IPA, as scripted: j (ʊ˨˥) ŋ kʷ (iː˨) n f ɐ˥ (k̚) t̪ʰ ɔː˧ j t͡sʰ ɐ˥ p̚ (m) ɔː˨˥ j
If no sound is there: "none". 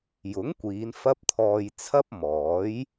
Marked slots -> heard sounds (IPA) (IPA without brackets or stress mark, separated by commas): ʊ˨˥, iː˨˧, p̚, m